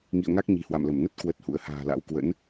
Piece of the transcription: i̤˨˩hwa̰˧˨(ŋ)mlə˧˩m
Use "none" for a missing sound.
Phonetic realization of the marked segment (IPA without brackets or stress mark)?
none